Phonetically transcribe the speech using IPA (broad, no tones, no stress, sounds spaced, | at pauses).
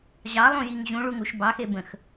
ʑ ɑ lˠ ũ j i ŋ ʑ ũ ɭ u ŋ u ʃ b ɑ x e b ə̃ x